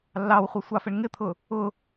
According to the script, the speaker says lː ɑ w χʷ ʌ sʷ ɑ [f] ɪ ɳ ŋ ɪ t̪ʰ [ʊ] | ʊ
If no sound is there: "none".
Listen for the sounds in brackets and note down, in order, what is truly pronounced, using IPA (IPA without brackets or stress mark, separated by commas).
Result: f, ʊ